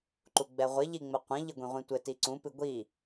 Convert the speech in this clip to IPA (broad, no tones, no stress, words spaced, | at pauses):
ǃuɡ͡bɛʁʷɘ ʎiŋ͡mɘqʷɐ̃ ʎɘɡʷĩʁʷĩtʷɘ tiǀũ pɨɡʷi